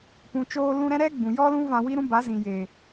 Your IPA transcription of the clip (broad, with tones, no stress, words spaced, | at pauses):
pũ˨t͡ʃoː˧lũ˧ɾɛ̃˦ ɾɛ˦ɡ͡bũ˨ jɔ˦lũ˦ vã˧wi˦ɾũ˦ ba˨˦ zĩ˨je˨